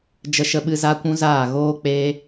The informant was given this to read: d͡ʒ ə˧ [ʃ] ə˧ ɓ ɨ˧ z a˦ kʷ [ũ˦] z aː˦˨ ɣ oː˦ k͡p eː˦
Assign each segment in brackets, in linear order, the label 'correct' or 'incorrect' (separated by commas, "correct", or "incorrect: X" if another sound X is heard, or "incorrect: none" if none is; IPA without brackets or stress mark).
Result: correct, correct